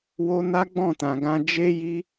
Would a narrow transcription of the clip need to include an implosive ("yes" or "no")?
no